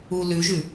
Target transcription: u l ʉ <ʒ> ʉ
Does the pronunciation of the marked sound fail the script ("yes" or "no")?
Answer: no